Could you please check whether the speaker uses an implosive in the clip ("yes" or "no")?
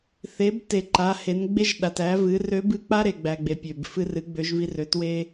yes